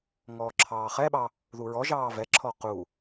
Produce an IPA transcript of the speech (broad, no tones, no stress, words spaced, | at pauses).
ŋɔːǁʰɑːχɛɓɑ | ðuɹɔʒɑː vɛǁʰɔ qu